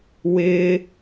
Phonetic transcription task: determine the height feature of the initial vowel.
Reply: high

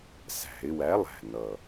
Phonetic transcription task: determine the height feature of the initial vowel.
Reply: low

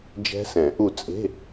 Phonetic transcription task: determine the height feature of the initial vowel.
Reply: mid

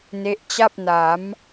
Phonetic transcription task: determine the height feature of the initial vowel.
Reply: mid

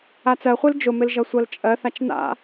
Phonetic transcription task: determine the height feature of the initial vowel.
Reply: low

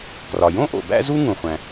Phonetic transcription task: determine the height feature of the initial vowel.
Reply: low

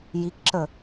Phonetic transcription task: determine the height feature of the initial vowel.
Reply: high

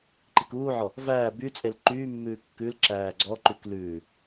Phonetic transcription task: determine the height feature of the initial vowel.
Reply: high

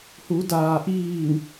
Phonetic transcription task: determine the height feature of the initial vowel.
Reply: high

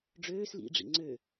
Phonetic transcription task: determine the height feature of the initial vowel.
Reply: mid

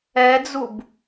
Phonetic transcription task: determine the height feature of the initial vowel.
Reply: mid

